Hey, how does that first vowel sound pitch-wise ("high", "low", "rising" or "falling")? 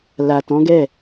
low